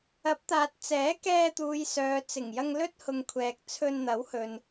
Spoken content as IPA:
ɐ˨˥ p̚ t̪ aː˨ t̚ t͡s ɛː˨˥ k ɛː˧ t̪ uː˨ j s œː˨ t͡s ɪ˨˩ ŋ j ɐ˧ ŋ l ɵ˥ t̚ h ʊ˨ ŋ kʷʰ ɛː˨ k̚ t͡sʰ ɵ˧ n n̪ ɐ˨˥ w h ɵ˨ n

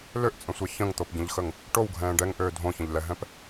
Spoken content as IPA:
l ø ʔ t͡sʼ ə̃ sʷ ɛ ç ə̃ ŋ t̪ o p ɟ ə̃ ʎ x ə ŋ | ʈ o w ɡʱ ɛ̃ː ɖ ɛ ŋ ʔ øː dʱ õ ç ə̃ ʎ l ɛ ɦ ɛ̃ p

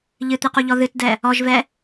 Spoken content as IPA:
ʎ ɨ t̪ ɨ q u ʎ ɔ ð ɨ t d ɛ | ɔ ʒ v ɛ

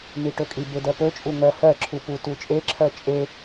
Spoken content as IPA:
n i ʈ ɵ kʼ i b e d ɜ p ɵ t͡ʃʼ u ŋ ɜ h ɜ ǁʰ u p u t u t͡ʃʼ e ǁʰ ɜ t͡ʃʼ e

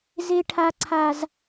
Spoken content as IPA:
z e˦ ʈʰ a˦ ǀʰ a˦ z

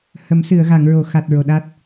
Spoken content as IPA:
h ə˨˩˦ m s ɨ˨˩˨ ə̯ ɣ a˨˩˨ ŋ ɹ o˨˩˨ x a˨˩ t̚ ɹ o˨˩ ɗ a˦˥ t̚

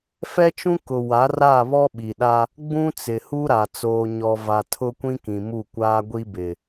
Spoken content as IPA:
f ɛ˦ t͡ʃ ũ˦ k ʊ˨ w a˨˦ r a˦˨ β ɔ˦ ɓ i˨ ɗ a˦ | ɡ͡b ũ˦ t͡s ɪ˨ h u˦ ɾ a˨ t͡s oː˨ ɲ ɔ˨ v a˨ tʰ ʊ˦ kʷ ĩ˦ k ĩ˨ m u˦˨ kʷ aː˦ ɡʷ i˦ b ɪ˨

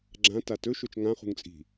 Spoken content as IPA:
ɡ͡ǁ ã t a t ɵ ʃ o t͡ʃ ŋ ã χ ṳ ŋ t͡sʼ i̤

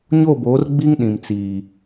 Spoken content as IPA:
ɲ o˦˨ b oː˨˦ r ɡ͡b i˦ ŋ ɗ ĩ˨ m t͡s iː˨

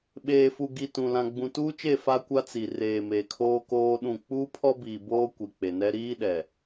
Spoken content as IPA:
ɓ eː˨ f u˨ ɡ i˨ t ũ˨ l ã˨ ɡ͡b ũ˨ t uː˦ t͡ʃ e˦˨ f a˦ kʷ a˦ t͡s i˨ r eː˨ m e˨ kʰ oː˦ k oː˦ ɗ ũ˦˨ k͡p uː˦ pʰ ɔ˦ b iː˨ b oː˦ kʷ i˨ k͡p e˨ n ɛ˦ ɾ iː˦ ɗ ɛ˨

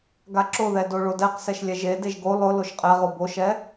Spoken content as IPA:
ɡ a ǁ ʊ ð ɛ d o ɭ o d ɛ q s ɛ ʃ lʲ ɛ ʒ e d e ʒ ɡ o lˠ ʊ l o ʃ qʼ ɛ ʁ o b o ʃ ɛ

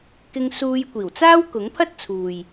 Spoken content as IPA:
k ɪ˧ ŋ s uː˧ j kʷ iː˨˩ w t͡s aː˥ w k ʊ˨˥ ŋ pʰ ɐ˥ t̚ t͡sʰ uː˨ j

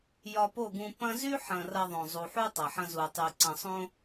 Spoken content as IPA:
j ɒ˧ p o˦˨ ɡ ũ˧ p ɐ̃˧ z y˦ ħ ɐ̃˨ r ɐ˧ ðˤ õ˨ zˤ u˨ ħ u˦ tˤ ɐ˨ ħ ɐ̃˧ z u˨ tˤ y˨ ǀ ɐ̃˨ sˤ õ˧

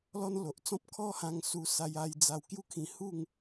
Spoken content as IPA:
l ɔ˦ n l o˨ ʔ t͡s ɔ̃˦ p̚ kʰ ɔ˦ h ã˧ ŋ s u˧ s a˧ j a˧ j d͡z a˧ w k j u˦ kʰ ĩ˧ h u˥˧ ŋ

